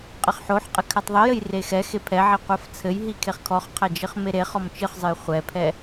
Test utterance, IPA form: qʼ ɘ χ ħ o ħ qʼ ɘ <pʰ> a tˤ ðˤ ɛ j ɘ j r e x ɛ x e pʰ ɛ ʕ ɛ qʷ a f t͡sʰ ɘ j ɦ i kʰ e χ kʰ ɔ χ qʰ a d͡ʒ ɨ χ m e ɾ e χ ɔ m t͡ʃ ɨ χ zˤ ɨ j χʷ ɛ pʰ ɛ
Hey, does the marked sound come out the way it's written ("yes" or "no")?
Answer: no